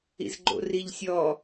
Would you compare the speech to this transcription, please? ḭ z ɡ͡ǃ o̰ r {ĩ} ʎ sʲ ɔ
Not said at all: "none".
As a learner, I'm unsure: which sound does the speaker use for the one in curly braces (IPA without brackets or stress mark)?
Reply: i